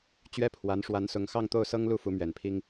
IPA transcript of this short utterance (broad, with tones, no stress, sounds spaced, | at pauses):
t͡ɕ ɥ ɛ˥ pʰ w a˧˥ n ʂ w a˧˥ n s ʊ˧˥ ŋ x ɑ˥˧ ŋ t̪ o˥˩ ʊ̯ s ɤ˥ ŋ l u˥ f u˧˥ m ɥ ɛ˨˩ n pʰ i˥ ŋ